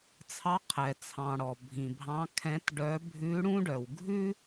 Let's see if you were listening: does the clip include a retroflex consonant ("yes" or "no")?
yes